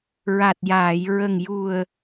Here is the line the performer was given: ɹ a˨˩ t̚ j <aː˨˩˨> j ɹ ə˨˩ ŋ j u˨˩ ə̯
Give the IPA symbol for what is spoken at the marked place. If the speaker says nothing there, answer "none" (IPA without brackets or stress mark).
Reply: aː˨˩˨